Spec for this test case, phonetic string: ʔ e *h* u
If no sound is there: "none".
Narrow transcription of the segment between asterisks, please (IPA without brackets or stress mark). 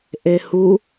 h